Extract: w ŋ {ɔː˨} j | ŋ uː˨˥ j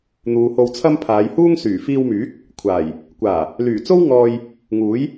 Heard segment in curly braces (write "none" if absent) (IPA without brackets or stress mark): ɔː˧